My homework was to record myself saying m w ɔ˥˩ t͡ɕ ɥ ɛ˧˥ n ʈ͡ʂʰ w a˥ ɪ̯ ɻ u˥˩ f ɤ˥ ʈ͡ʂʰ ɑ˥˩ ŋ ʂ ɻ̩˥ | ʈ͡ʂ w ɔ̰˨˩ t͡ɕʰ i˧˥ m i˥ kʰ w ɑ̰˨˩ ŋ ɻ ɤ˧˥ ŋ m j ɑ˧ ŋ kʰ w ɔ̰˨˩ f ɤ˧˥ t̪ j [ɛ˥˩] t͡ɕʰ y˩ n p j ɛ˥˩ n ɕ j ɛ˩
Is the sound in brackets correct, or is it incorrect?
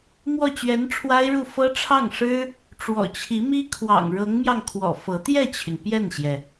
correct